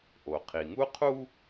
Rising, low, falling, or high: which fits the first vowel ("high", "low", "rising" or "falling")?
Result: low